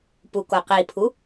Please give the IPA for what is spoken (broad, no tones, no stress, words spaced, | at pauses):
pukoqipʰu